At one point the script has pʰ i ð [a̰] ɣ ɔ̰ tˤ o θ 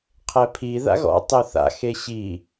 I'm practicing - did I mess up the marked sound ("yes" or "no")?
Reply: no